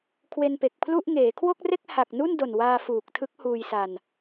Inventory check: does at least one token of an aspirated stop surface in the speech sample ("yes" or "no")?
yes